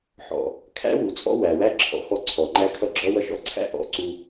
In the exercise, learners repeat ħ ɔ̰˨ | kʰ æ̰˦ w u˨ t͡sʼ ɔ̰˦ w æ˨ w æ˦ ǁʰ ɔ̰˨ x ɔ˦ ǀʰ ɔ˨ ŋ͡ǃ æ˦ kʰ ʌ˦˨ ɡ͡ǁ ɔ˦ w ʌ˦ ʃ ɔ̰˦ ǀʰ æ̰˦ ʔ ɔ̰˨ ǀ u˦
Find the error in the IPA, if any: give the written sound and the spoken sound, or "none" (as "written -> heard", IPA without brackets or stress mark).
none